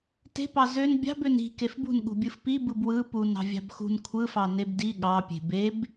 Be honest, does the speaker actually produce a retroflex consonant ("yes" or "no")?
no